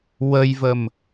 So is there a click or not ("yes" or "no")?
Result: no